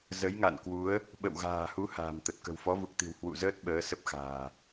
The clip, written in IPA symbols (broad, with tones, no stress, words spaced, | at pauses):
zə˨˦jŋa̰˧˨nkwu˨˦ə̯ | ɓə̰˧˨wɣa̤ː˨˩hu˨˦ ha̤ː˨˩mt̪ə˨˩t̚ kə̤˨˩wfɔ˨˦vu˨˩k̚t̪i̤˨˩w hwṵ˧˨zəː˦˥t̚ ɓəː˨˦sə˦˥p̚xa̤ː˨˩